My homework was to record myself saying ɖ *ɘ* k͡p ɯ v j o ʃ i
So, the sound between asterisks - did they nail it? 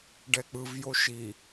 no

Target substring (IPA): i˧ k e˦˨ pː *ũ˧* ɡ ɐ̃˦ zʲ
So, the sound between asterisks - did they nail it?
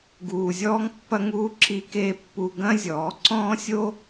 no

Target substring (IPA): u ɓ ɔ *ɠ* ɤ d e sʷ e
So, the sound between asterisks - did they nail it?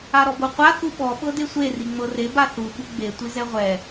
no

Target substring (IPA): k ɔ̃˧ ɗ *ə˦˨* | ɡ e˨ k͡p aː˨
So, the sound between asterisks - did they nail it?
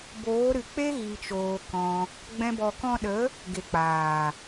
no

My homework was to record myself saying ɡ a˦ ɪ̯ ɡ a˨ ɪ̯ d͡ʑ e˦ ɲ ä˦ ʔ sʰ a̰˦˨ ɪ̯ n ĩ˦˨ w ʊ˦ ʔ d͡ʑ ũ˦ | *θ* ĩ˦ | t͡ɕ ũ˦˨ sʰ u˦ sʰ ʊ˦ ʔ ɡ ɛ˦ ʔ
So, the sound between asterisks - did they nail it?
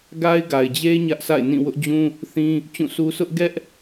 yes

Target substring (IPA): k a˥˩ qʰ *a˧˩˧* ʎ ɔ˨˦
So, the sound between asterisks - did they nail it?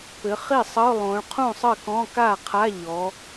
no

